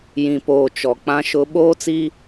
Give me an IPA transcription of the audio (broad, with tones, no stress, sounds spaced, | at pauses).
j ĩ˨ p oː˨ t͡ʃ ɔ˨ k͡p ã˦ ʃ ʊ˦ ɓ oː˦ t͡s i˦